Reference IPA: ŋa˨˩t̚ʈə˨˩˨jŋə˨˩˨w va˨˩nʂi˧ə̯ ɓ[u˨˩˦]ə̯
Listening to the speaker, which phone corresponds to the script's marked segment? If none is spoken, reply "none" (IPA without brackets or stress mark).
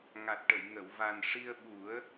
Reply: u˨˩˦